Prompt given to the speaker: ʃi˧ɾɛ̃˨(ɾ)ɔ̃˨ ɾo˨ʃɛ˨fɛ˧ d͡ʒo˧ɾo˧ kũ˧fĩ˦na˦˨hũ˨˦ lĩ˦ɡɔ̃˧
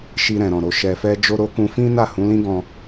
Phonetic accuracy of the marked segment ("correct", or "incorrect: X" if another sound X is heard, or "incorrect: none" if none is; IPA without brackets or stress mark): correct